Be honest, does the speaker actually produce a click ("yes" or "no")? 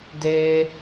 no